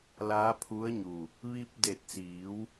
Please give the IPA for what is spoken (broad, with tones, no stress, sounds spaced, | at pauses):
l aː˧˥ pʰ u˧˥ ə̯ ɲ u˧˩ | ʋ i˧ p̚ d e˧˩ t̚ s iː˩˧ w